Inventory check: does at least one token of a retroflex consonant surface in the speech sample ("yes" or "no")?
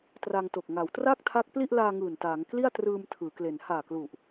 no